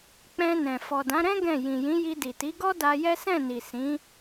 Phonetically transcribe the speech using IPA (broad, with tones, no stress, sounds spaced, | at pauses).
k͡p ɛ̃˧ n ɛ̃˨ f ɔ˨ d ã˨˦ ɾ ɛ̃˦ ɡ ɛ̃˦˨ j ĩ˨ j ĩ˨˦ j i˧ d i˨ t i˨˦ ɡ ɔ˦ d a˧ j ɛ˦ s ɛ̃˦˨ n i˨ s ĩ˨˦